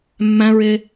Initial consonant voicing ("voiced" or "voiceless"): voiced